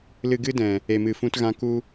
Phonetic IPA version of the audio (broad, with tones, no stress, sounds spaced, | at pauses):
l ɨ˧ ɡ ɨ˦ d ɛ̃˨ | e˨ m ɨ˨ f ũ˧ t ɣ ã˧ k u˦